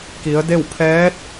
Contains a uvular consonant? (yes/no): no